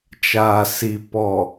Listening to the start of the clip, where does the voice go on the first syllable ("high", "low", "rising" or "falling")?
low